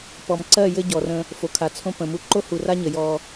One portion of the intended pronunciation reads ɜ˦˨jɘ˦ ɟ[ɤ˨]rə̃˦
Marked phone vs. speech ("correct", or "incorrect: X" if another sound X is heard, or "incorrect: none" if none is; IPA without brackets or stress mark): incorrect: ɔ˨